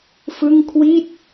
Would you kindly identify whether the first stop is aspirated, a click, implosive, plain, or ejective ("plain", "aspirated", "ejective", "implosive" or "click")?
aspirated